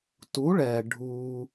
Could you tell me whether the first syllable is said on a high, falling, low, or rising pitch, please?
rising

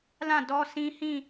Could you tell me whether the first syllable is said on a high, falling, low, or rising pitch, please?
falling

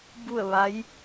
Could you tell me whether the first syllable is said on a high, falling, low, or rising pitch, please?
falling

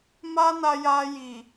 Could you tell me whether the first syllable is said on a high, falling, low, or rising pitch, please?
high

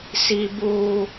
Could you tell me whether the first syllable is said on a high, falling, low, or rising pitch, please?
high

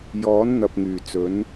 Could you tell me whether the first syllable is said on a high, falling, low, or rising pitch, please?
rising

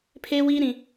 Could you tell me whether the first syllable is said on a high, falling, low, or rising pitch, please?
high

